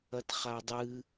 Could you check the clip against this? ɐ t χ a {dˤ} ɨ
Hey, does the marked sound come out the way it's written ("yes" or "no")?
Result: yes